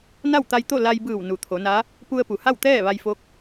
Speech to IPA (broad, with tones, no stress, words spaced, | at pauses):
na˥˨wt̪a˧jt̪o˥˨ la˧jbɯː˧˩w nu˩t̪ʰo˩˧na˧˥ | pu˧ə̯pu˩ha˥˨w t̪ɛː˥˨ʋa˧jfo˧˥k̚